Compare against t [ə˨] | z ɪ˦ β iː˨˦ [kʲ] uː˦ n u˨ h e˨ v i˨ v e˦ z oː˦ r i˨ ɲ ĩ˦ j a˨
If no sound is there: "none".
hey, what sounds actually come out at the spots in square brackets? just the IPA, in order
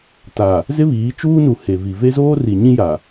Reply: a˨, t͡ʃ

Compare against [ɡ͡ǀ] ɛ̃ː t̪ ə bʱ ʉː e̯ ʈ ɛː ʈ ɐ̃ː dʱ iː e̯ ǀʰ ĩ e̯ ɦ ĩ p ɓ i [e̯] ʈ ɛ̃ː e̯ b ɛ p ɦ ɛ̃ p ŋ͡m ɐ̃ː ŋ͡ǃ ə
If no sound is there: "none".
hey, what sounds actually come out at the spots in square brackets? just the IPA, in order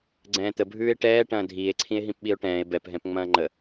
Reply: ɡ͡ǀ, o̯

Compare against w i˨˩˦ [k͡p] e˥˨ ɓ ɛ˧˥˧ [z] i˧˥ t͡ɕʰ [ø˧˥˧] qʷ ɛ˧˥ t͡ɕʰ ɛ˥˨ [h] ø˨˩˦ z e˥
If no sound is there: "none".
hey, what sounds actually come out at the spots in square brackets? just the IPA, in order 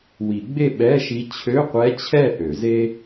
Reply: ɡ͡b, ʃ, ø˧˥˧, ʔ

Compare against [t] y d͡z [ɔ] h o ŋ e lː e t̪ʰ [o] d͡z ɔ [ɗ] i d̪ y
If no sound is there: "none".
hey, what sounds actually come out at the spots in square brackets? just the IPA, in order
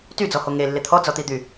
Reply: t, ɔ, ɔ, t̪

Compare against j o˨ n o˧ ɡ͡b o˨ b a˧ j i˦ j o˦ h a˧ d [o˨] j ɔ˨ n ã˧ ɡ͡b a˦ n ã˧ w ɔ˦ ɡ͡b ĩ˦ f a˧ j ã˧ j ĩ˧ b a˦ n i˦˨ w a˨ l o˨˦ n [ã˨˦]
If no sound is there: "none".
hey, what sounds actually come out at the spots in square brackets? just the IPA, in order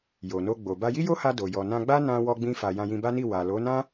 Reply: o˨, ã˦

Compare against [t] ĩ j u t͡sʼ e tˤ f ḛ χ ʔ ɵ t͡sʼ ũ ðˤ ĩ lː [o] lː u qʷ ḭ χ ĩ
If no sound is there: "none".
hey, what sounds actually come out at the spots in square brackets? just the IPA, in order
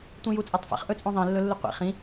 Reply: tʷ, ɵ

